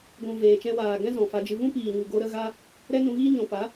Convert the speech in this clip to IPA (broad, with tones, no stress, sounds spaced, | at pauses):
ɡʷ ũ˨ v eː˨ t͡ʃ ɛ̃˧ w aː˨ ɡ ɛ̃˦ z ɔ̃˨ f a˧ d͡ʒ ɨ˧ v ũ˦ p iː˨ ɲ u˨ ɡ o˧ ɾ ə˦ ɣ a˦ | ɾ ɛ˦ n ũ˧ ɣ iː˦ ɲ ɔ̃˨ p a˨˦